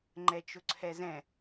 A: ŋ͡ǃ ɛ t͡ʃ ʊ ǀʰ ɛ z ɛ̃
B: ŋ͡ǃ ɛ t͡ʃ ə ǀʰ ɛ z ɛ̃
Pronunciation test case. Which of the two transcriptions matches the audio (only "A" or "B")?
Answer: A